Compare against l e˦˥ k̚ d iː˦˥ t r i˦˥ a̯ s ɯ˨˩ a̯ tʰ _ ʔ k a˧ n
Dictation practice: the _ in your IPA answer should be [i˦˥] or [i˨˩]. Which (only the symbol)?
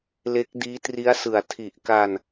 i˨˩